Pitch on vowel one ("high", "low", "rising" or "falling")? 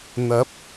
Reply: rising